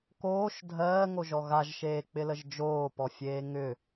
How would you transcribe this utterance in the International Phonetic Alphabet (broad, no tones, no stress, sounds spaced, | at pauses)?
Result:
k oː ʃ dʱ ɜː ŋ o ʒ ɔ ɣ a ʒ ʃ eː k͡p ɪ l ə ʒ d͡ʒ oː p ɔ fʲ eː ŋ ʏ